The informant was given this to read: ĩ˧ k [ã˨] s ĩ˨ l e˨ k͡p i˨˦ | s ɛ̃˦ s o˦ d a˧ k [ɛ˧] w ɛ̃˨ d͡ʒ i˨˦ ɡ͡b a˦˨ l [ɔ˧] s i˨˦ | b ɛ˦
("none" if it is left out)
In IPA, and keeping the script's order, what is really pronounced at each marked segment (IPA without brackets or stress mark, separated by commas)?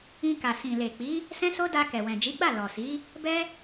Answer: a˨, ɛ˨, ɔ˨